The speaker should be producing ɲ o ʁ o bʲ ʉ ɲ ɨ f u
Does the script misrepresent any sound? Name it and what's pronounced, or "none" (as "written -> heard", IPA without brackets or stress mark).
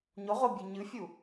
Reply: f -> fʲ